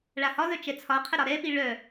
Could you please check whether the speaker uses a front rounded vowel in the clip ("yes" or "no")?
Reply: yes